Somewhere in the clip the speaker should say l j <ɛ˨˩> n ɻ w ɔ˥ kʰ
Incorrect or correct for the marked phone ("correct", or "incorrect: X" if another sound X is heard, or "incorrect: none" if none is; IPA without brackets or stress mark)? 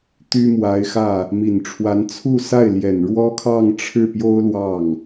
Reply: correct